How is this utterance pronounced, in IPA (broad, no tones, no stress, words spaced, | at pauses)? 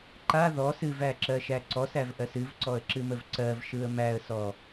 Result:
ǃa ðɔs ɨvæǁɜʃæ ǀɔsævʔɜs ɨvǀɔə̯ǁɨməv ǀɜvʃɯə̯ mæə̯sɔ